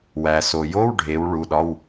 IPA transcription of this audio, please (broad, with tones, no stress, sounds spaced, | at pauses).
w æ˩ s o˩ j o˧˥˧ w ɖʱ e˩˧ w ɭ u˩˧˩ ɗ ɒ˧˥˧ w